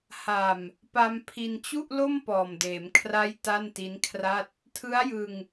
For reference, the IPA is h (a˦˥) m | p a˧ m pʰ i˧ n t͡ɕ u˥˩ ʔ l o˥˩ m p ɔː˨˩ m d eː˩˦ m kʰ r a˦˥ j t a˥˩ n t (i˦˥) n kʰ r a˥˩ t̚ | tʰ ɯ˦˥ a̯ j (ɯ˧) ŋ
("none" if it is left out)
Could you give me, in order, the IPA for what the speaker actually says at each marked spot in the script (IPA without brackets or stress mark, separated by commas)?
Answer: a˨˩, i˦˥, ɯ˧